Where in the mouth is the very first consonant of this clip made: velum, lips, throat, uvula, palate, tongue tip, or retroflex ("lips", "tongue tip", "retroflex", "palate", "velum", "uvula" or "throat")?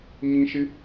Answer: palate